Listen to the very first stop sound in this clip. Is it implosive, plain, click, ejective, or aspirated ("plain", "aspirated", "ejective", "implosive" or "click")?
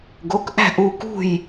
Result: plain